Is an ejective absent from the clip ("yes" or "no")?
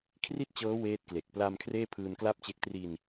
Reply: yes